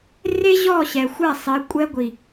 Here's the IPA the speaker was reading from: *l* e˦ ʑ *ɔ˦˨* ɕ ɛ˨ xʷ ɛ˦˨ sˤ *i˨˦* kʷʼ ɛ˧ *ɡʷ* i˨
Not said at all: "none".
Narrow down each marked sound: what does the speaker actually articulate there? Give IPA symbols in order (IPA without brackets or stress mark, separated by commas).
r, ɔ˦˨, i˨˦, ɡʷ